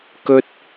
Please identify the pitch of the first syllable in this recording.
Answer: high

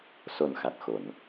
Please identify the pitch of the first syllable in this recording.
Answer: low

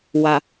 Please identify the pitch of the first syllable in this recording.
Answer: low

